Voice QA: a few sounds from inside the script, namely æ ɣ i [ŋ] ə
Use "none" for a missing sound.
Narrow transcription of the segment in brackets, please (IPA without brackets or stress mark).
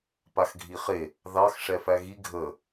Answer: ɡʱ